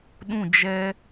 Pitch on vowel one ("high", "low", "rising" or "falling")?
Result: falling